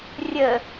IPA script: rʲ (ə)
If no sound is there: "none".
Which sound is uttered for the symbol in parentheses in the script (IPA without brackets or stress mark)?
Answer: ə